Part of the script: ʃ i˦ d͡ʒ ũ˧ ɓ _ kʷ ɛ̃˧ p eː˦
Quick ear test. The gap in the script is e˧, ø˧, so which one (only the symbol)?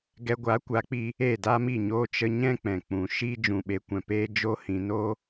e˧